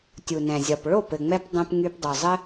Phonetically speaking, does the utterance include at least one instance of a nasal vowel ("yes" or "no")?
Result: yes